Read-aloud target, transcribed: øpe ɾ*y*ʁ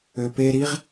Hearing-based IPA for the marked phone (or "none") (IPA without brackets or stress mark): i